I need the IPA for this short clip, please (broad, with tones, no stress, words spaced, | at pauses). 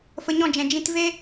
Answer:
fə˧ɲɔ̃˦˨d͡ʒɛ̃˨ d͡ʒĩ˧tve˦